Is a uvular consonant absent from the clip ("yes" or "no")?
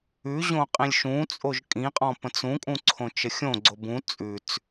no